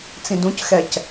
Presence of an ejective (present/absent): absent